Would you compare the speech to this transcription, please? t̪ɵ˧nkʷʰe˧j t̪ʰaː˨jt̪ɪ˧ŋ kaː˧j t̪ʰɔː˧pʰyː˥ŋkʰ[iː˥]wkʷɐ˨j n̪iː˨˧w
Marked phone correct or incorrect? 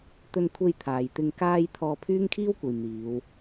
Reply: correct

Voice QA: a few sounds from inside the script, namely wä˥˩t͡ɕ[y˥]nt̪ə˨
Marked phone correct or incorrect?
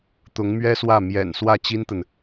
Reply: incorrect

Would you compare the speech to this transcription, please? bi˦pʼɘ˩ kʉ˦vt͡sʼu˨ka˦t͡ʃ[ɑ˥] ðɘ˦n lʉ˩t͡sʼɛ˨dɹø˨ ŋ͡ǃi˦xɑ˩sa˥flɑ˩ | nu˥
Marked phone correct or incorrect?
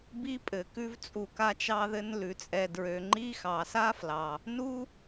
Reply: incorrect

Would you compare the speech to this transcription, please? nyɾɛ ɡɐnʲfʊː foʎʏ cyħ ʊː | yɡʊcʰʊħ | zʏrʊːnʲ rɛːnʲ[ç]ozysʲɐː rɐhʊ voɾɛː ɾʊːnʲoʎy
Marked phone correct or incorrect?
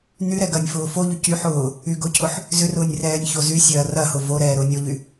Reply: correct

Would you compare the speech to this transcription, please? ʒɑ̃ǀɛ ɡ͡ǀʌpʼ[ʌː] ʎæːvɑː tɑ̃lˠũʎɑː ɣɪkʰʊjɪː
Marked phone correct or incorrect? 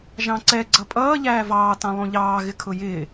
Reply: correct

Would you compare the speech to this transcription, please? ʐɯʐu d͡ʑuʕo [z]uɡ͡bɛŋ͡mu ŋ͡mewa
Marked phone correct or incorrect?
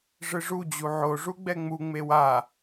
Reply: incorrect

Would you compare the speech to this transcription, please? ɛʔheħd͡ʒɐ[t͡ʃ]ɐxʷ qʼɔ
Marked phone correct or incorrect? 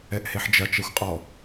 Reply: correct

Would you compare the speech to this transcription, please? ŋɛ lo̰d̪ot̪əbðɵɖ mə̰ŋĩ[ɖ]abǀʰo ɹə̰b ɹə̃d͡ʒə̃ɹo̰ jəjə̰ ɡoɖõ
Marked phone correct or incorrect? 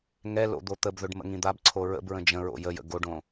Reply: incorrect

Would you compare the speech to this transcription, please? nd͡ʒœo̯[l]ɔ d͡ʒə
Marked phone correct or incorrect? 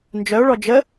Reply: incorrect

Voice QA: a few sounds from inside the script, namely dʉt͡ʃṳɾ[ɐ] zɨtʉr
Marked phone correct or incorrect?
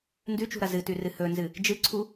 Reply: correct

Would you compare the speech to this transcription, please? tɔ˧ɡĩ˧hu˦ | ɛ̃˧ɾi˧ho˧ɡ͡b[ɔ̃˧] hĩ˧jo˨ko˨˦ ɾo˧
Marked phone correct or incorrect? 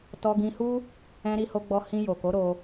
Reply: incorrect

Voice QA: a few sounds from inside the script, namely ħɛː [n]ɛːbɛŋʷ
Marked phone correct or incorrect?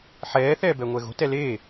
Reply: incorrect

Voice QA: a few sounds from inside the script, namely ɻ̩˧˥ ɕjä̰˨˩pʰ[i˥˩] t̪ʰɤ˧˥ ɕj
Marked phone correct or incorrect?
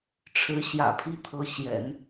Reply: incorrect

